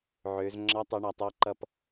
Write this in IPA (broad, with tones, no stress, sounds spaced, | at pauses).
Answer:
ʕ ø˩˧ z ŋ͡ǁ ɑ˧˥ tˤ u˩˧ ɳ a˩˧ tˤ ɔ˦˨ ǃ ʌ˦˨ p